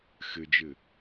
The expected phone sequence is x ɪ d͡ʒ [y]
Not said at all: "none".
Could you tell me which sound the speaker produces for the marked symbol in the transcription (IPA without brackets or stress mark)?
ɪ